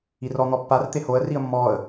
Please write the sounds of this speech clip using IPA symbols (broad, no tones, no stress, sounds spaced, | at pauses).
i r ɔ n̪ ɔ pː a r t̪ e h o ə̯ r i ə̯ mː ɔ ə̯